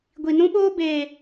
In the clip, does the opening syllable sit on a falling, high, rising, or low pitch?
low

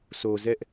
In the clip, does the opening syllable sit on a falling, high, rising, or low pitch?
low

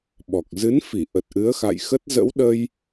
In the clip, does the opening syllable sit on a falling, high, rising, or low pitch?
low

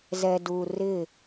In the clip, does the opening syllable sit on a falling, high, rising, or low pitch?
low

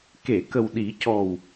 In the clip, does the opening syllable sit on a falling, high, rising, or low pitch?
low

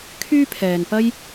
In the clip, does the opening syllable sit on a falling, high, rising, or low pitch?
high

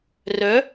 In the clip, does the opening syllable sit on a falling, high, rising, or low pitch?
rising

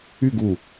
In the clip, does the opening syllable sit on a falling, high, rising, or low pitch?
falling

